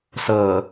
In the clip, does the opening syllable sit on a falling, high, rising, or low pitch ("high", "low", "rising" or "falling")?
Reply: low